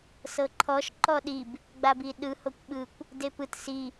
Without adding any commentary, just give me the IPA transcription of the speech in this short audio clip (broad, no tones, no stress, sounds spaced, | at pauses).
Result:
s ɤ ǃʰ ɔ ʃ ǃ ɔ ɗ i b | ɡ͡b a b i ɗ ɯ h o kʷ ɓ ɯ kʷ | d e p ɯ t s i